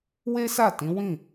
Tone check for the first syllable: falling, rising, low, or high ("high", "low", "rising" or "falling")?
high